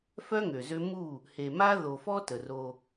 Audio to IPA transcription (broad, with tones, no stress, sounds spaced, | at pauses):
f œ˦ ŋ ø˨ z ø˦ m u˦˨ | h e˨ m a˦ ð o˨ f ɔ˦ t ə˨ r o˦